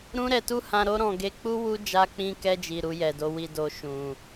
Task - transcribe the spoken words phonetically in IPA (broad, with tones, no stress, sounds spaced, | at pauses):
ɾ ũ˦ ɾ ɛ˧ t u˦ h ã˧ ɾ o˦ ɾ ɔ̃˧ ɡ e˧ k͡p u˦ w u˦ d͡ʒ a˧ k͡p ĩ˧ k ɛ˧ d͡ʒ i˨ ɾ u˧ j ɛ˨ d o˨˦ w i˦˨ d o˧ ʃ ũ˨